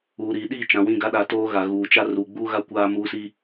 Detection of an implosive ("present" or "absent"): present